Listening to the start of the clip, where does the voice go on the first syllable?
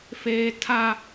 high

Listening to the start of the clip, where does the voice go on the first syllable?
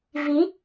rising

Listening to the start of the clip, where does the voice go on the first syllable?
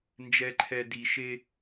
low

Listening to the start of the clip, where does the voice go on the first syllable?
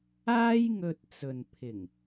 high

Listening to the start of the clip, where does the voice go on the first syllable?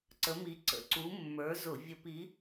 rising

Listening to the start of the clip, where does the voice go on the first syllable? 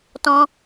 high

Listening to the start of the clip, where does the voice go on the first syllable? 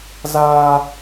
high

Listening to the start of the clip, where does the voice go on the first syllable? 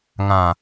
low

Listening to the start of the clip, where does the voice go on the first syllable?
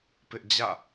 high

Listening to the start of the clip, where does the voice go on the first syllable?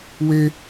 high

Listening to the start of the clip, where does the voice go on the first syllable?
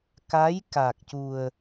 rising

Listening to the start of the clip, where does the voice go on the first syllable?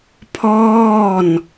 falling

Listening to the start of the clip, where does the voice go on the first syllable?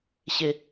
low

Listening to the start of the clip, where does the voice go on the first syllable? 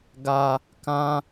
low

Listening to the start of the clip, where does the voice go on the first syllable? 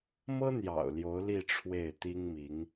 high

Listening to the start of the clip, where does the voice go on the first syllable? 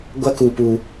high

